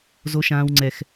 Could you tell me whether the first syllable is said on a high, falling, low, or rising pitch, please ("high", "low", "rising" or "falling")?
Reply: high